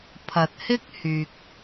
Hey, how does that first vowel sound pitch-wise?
low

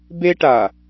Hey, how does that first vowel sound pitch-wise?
high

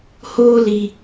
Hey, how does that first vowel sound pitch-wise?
high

